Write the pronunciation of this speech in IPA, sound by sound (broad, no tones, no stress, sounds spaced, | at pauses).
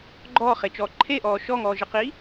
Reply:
ɡ͡ǃ ɔː χ e t͡ʃ ɔː ǃʰ e ʔ ɔː ʃ ɔ ŋ ɔː ʒ e q iː